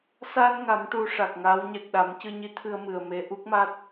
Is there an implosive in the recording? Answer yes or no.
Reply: yes